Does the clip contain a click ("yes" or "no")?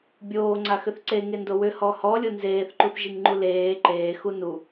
yes